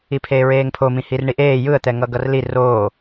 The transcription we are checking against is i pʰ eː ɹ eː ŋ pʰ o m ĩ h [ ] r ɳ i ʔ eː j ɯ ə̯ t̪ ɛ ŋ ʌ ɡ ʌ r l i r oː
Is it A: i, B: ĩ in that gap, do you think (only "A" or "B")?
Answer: A